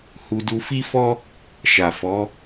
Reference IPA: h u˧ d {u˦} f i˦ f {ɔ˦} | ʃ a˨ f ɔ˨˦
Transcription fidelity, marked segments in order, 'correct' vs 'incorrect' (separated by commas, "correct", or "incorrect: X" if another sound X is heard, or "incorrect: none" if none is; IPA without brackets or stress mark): incorrect: u˧, correct